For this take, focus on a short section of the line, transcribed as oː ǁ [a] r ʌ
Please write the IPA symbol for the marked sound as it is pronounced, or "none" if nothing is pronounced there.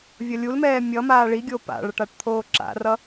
a̰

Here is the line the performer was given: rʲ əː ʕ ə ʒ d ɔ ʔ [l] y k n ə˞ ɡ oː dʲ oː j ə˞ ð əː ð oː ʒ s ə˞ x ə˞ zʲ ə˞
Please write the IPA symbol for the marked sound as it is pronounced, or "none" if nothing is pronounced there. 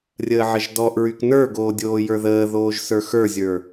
ɹ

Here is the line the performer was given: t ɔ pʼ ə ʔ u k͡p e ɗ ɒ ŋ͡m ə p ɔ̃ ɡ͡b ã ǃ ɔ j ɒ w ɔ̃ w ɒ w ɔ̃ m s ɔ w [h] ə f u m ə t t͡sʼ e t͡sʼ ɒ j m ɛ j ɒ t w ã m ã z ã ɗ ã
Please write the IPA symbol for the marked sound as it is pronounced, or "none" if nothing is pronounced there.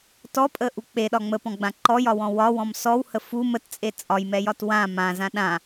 h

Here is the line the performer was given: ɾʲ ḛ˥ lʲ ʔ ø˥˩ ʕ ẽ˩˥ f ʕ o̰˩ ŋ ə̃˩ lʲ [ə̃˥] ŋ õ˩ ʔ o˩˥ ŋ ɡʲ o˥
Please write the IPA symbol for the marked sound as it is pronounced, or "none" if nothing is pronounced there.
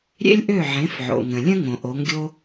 ə̃˥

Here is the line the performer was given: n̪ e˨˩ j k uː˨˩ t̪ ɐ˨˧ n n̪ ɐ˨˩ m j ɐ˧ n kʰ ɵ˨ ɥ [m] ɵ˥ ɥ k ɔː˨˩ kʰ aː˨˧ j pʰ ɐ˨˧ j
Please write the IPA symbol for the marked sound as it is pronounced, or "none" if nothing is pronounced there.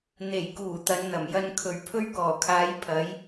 pʰ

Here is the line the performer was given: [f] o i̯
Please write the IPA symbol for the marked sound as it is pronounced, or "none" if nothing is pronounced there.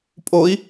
pʼ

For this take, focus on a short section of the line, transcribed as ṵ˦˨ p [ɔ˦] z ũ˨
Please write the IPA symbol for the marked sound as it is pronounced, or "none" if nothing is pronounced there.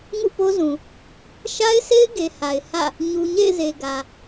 o˦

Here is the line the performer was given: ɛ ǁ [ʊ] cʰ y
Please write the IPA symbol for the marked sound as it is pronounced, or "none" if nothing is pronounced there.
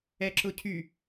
ʊ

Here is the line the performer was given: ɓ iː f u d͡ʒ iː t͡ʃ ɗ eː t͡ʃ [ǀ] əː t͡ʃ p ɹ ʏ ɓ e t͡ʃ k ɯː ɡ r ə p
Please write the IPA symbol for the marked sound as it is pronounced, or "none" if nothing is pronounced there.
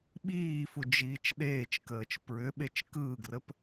k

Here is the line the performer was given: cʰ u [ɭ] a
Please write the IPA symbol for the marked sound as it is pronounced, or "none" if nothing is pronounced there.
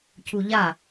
ʎ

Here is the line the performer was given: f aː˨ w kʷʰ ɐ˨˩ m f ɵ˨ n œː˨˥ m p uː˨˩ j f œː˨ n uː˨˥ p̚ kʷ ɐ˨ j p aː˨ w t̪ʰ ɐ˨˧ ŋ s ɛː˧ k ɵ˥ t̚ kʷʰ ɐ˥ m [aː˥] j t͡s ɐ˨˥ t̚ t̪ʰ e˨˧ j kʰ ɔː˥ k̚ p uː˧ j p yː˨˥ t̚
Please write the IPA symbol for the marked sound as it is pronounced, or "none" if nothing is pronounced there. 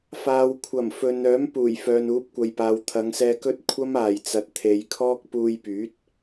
aː˨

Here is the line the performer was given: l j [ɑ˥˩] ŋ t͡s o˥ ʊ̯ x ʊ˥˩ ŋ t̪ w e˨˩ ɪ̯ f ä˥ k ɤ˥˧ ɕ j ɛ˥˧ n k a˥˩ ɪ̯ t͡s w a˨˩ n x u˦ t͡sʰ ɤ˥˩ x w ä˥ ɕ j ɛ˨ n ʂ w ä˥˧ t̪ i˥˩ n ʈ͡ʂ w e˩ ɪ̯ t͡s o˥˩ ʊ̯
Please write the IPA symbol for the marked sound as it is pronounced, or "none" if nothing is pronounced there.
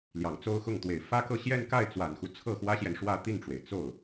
ɑ˨˩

